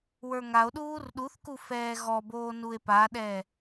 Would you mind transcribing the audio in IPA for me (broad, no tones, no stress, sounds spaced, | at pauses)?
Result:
w ə˞ ŋ a o̯ ɗ uː r ɗ u θ k u f ɛː ɣ ɔ b oː n u e̯ p a ɗ ɛ